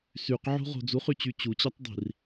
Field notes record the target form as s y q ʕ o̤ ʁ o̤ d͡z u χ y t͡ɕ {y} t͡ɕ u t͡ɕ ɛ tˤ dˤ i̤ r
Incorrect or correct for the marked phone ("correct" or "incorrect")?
correct